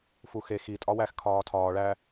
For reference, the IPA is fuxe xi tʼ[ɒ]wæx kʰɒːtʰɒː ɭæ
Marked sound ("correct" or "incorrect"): correct